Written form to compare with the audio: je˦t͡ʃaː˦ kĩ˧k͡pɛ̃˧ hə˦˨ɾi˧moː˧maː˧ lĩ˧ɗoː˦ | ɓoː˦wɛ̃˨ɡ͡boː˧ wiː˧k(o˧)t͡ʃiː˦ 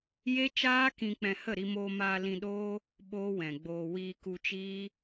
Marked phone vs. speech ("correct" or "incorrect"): incorrect